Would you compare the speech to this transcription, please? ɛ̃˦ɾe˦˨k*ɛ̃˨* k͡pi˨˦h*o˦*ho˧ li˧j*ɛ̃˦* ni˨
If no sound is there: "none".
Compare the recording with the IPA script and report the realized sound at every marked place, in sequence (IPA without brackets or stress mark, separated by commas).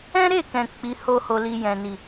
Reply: ɛ̃˨, o˦, ɛ̃˨